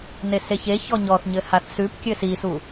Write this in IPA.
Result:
n e s e ç e ç ɔ ɲ ɔ θ ɲ ɘ h a θ s ʉ p kʲ ɘ s i s u

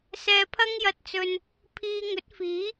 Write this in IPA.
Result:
s ɛː˧ pʰ ɐ˥ ŋ j ɐ˧ t̚ t͡s ɵ˧ n | pʰ iː˧ ŋ ɵ˨˥ t̚ f iː˨˥

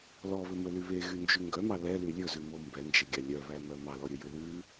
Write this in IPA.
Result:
l ɔ β ɵ m ɵ l y β e ɣ y n d͡ʒ y ŋ ɡ œ m ɑ l ɛ l y lʲ ɵ z ʉ m o m b ɛ n d͡ʒ e ɡʲ ɑ lʲ œ β æ m œ m ɑ l ɔ ɾʲ ɵ j ʉ l ʉ

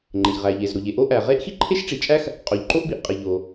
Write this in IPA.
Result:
ŋ͡ǃ e˩ ʎ ʁ æ˩ ʎ e˩ z ɾ o˩ ʎ e˩ ʔ o˥ ʔ æ˩ ʁ e˥ ʔ x i˥ ǃʰ e˥ ʃ ʈ͡ʂ i˩ t͡ʃʼ æ˥ x | qʼ o˩ ʎ ǃ o˥ ʔ b i˩ ʔ qʼ e˩ ʎ o˩

